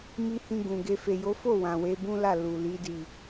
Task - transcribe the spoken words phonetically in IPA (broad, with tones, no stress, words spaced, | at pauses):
mi˧hĩ˧ ɡũ˨ɡe˧ fe˨jo˨˦fo˦˨ wã˨we˨˦ bũ˦la˦˨ lu˨li˨˦ di˦˨